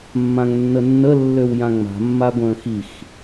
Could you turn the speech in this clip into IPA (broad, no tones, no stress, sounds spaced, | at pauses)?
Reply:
mː ã ŋ nː ə nː ə lː ø w j ã ŋ͡m a̤ mː a ɡʷ ə̃ː x i x